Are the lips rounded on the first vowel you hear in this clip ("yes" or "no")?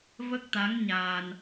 no